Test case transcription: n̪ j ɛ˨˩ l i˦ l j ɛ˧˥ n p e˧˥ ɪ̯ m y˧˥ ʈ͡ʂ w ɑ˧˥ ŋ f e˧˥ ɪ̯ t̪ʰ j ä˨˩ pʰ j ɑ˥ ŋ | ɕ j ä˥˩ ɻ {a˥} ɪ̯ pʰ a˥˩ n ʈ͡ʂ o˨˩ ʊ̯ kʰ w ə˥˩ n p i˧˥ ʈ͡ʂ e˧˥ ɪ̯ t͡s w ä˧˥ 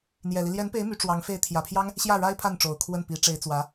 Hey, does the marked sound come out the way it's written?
yes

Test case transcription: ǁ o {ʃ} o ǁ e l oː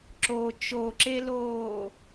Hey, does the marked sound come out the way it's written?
no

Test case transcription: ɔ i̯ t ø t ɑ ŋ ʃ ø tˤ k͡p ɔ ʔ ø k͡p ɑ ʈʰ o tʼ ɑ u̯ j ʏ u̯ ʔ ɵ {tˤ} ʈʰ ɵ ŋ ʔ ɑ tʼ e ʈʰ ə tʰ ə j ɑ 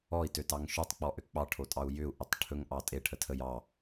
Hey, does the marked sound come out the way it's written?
yes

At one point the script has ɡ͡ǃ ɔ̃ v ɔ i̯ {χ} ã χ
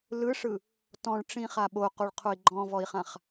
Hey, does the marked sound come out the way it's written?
yes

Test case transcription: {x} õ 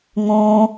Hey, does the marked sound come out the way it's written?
no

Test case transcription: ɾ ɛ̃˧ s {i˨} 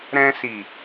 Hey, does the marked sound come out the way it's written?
yes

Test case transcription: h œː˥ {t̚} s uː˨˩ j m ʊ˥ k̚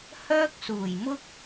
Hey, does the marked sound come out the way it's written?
no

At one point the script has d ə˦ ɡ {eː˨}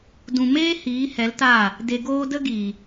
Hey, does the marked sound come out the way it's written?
no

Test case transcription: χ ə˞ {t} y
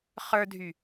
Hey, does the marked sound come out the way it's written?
no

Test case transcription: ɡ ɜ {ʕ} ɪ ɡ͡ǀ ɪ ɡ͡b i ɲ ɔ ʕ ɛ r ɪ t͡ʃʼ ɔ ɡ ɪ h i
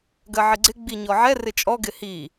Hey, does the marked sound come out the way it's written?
yes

